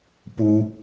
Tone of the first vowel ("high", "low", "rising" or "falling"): high